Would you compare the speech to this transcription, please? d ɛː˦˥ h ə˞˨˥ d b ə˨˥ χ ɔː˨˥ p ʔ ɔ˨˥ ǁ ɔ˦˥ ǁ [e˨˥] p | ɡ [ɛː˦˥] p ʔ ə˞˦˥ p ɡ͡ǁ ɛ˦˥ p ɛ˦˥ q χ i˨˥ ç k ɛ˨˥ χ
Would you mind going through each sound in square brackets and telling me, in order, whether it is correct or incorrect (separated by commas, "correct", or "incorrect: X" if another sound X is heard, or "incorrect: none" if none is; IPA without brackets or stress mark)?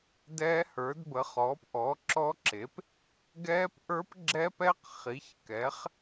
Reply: correct, correct